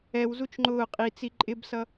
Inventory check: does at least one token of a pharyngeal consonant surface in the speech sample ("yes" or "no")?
no